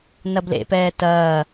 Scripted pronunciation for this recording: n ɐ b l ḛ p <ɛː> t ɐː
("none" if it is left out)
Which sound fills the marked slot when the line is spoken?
ɛː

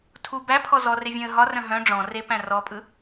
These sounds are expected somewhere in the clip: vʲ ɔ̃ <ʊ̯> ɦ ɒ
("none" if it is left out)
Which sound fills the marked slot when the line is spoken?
ə̯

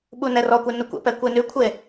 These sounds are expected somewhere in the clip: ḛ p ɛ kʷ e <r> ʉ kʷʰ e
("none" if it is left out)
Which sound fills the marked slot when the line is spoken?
n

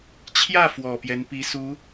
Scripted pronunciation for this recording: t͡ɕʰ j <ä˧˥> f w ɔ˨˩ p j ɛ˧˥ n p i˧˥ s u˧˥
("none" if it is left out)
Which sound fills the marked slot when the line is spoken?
ä˥˩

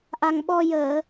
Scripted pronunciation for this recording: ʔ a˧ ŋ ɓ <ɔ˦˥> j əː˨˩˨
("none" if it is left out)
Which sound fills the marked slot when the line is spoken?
ɔ˧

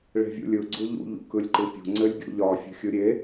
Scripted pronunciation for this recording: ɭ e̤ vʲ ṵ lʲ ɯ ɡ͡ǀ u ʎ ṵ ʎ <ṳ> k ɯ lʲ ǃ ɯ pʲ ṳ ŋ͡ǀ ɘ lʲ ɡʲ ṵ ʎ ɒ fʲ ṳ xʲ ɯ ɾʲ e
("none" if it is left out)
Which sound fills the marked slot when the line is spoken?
ṵ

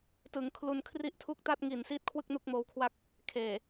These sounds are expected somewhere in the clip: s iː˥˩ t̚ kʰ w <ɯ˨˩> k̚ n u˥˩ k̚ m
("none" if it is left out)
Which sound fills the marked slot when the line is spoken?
ɯ˥˩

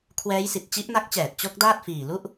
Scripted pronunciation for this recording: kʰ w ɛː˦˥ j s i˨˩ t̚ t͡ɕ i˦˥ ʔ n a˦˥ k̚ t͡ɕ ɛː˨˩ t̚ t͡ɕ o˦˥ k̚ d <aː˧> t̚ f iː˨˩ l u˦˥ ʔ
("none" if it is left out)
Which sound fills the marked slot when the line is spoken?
aː˥˩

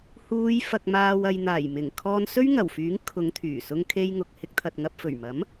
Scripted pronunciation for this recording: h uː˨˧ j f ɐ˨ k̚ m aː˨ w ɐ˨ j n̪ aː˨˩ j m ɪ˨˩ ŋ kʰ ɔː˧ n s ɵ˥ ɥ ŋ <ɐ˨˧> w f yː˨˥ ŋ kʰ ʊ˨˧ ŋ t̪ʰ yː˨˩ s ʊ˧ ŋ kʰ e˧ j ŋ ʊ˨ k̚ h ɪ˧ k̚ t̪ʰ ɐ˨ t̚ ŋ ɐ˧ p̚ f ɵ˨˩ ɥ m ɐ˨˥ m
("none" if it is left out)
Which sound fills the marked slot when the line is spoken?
ɐ˨˩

